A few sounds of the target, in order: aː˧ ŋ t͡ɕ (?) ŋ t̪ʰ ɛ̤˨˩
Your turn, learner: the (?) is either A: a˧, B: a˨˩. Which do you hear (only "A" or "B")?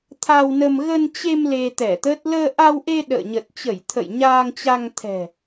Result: A